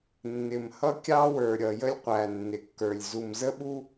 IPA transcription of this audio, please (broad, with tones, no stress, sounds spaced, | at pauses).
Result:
nː ɪ˨ m h ʌ˦ kʲ ɑ˦ w ə˞˨ ɾʲ ʌ˨ j ə˦ lʲ qʷ æ˨ nː ɪ˨ kː ə˞˨ lʲ z u˨ m z ə˦ ɓ u˦